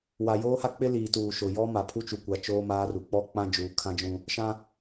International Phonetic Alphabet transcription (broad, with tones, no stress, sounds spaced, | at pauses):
w a˨ j oː˦ h a˦ k͡p ɪ˦ l iː˨ t uː˨ ʃ ʊ˨ j ɔ˦ m a˨ pʰ u˦ t͡ʃ u˨ kʷ a˨ t͡ʃ oː˦ m aː˦ r u˨ k͡p ɔ˦ k͡p ã˦ d͡ʒ uː˨ kʰ ã˦ d͡ʒ ũ˦ | ʃ ã˦